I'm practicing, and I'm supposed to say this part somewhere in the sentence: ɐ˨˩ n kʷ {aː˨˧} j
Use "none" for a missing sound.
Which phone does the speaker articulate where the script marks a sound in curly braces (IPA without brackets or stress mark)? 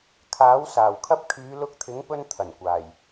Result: aː˨˩